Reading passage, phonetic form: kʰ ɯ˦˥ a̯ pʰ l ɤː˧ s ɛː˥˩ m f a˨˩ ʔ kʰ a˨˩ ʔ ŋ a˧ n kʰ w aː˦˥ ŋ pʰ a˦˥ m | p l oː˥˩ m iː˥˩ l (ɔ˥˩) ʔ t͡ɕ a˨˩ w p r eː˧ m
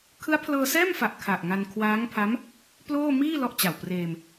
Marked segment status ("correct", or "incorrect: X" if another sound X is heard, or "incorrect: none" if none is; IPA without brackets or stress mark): correct